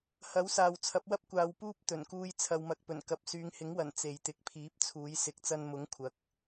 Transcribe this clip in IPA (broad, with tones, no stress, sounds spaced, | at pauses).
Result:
h ɐ˨˥ w s aː˨ w t͡sʰ ɐ˨˥ p̚ w ɐ˥ p̚ kʷ aː˧ w p uː˥ p̚ t̪ ɵ˨˩ n k uː˧ j t͡sʰ ɐ˨ w m ɐ˨ k̚ p ɵ˨˩ n k ɐ˨ p̚ s yː˨˧ ŋ h ɪ˨˥ ŋ w ɐ˨˩ n t͡s e˨ j t̪ ɪ˨˥ k̚ pʰ iː˨˥ p̚ t͡sʰ uː˨˥ j s ɪ˨˥ k̚ t͡s ɐ˧ n m ʊ˨˥ ŋ kʷʰ ɐ˨˥ k̚